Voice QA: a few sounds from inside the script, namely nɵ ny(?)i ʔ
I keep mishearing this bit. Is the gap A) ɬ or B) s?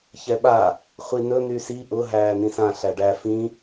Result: B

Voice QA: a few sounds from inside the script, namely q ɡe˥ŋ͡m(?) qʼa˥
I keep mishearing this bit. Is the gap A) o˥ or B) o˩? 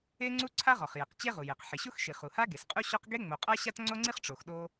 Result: B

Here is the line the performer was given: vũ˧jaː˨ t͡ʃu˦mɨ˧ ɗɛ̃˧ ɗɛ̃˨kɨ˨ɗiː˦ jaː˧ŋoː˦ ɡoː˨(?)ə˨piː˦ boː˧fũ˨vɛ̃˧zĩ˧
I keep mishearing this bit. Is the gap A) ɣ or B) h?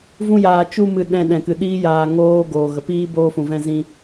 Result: A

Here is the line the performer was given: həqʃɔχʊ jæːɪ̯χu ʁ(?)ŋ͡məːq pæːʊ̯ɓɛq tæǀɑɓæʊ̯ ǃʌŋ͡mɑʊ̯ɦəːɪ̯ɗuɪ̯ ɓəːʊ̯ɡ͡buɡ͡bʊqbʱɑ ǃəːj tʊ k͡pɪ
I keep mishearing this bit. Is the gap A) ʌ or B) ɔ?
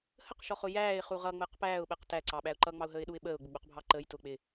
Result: A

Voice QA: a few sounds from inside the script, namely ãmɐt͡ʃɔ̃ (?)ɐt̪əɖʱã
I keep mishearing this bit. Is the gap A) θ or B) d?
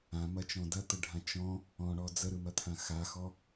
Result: B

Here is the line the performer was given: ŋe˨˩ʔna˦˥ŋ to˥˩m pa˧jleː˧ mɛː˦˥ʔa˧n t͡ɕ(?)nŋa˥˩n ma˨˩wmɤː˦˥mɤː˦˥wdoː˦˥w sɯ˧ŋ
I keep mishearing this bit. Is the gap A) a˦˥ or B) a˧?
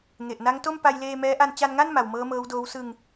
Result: B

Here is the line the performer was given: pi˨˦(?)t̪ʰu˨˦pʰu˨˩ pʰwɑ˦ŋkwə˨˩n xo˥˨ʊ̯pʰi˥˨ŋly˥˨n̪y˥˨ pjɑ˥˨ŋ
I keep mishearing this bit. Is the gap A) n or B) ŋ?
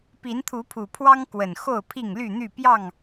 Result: A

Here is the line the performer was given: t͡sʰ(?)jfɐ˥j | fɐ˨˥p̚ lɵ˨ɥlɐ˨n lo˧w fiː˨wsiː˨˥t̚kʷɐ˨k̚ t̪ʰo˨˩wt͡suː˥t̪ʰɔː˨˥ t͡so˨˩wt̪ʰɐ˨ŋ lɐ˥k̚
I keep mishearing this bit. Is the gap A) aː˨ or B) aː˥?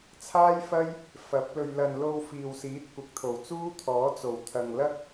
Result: B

